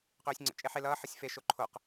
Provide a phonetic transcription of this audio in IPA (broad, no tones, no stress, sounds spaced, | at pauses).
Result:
q øː sʲ ŋ͡ǀ ə̰ t͡ʃʼ e ħ e l ʌː ħ ʌ sʲ f e ʃ o ǃʰ o q